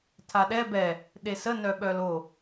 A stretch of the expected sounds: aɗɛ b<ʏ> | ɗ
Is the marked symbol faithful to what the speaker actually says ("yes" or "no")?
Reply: no